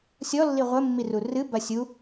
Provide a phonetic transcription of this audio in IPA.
sʲɔlːi ʁʷɘmːiru rɨbɐ sʲu

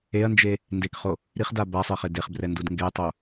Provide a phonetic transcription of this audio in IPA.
eɐ̯nd͡ʒe | ndekχo | ɾiχda basˤeχe deχbrɛndud ŋɡɛtˤo

